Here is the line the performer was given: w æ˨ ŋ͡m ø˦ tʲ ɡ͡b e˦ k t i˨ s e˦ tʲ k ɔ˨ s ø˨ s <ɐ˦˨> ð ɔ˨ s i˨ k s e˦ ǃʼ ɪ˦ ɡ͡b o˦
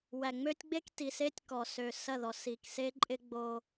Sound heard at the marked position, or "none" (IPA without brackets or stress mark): ɐ˦˨